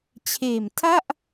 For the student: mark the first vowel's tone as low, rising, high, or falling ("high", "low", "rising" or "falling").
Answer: low